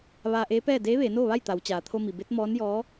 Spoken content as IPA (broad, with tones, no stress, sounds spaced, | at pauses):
ʋ aː˧ ʔ eː˧˥ p ɛː˥˨ d eː˧˥ ʋ eː˩˧ n oː˥˨ ʋ a˥˨ j t̪ a˩˧ w t͡ɕ aː˩ t̪ʰ o˧ m i˩ b e˧˥ t̚ m ɔː˧˥ n j ɔː˧˥